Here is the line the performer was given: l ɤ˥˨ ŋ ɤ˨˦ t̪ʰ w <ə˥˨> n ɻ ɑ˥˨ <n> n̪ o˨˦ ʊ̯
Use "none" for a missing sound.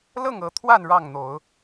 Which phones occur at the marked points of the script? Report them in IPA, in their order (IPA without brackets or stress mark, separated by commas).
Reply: a˥˨, ŋ